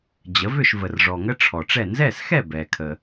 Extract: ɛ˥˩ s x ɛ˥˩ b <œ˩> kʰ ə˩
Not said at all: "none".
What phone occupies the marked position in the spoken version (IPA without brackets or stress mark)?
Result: ɛ˩